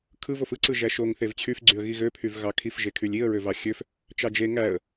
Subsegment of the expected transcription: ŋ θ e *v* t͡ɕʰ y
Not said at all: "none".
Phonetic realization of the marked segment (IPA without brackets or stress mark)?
v